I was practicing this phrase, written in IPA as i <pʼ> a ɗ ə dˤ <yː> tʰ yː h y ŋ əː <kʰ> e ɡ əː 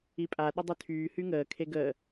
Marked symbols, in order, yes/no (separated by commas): yes, no, yes